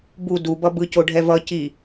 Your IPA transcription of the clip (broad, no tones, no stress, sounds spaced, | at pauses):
b u d u b ʌ b ɯ c o ɖʱ ɛ v ʌ c i